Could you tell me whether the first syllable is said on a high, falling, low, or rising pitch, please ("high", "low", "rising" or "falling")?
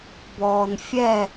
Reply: low